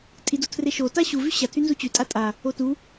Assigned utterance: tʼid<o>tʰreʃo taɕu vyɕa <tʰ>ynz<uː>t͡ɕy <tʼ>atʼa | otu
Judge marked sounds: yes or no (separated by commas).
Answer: yes, yes, no, yes